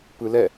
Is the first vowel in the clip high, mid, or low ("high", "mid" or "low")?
high